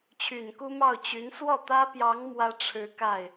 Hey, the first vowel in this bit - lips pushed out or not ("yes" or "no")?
yes